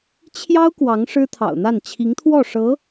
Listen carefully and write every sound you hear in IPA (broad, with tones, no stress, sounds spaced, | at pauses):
t͡ɕʰ j ɑ˥ ʊ̯ k w ɑ˧˥ ŋ ʂ ɻ̩˥ t̪ʰ ɑ̰˨˩ ʊ̯ n̪ a˥˩ n t͡ɕʰ i˧˥ ŋ t̪ʰ w ɔ˥˩ ʂ ɤ˧˥